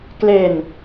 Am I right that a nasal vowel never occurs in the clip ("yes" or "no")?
yes